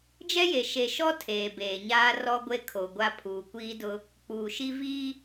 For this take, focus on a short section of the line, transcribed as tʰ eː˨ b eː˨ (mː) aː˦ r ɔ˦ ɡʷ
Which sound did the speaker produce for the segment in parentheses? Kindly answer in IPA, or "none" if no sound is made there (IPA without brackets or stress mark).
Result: ɲ